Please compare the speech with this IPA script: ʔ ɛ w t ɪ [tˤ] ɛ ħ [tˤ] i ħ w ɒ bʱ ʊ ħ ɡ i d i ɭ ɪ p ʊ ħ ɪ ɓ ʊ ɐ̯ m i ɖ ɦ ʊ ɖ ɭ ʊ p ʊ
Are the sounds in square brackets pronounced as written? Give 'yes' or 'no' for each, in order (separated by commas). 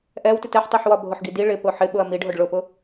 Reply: no, yes